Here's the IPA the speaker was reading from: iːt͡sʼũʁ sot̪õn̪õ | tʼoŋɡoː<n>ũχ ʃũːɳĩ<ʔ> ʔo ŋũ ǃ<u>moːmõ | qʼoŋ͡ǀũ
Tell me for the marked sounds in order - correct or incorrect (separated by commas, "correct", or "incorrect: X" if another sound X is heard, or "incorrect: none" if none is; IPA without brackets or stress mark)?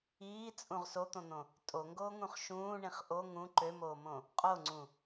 incorrect: ŋ, incorrect: χ, incorrect: ø